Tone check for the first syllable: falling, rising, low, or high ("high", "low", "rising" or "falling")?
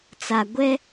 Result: low